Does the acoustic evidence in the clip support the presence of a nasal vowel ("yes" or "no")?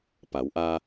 no